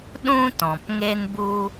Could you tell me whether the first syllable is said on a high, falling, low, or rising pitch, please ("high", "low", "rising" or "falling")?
high